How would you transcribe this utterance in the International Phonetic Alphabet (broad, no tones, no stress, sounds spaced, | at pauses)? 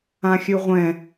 ã xʲ ʉ ʁʷ ɛ̃